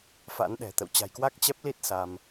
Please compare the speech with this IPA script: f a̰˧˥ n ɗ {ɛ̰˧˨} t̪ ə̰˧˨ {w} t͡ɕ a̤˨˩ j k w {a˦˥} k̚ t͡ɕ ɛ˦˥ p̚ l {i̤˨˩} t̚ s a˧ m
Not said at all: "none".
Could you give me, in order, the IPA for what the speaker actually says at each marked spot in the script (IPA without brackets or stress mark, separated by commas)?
ɛ̤˨˩, w, a˦˥, i˦˥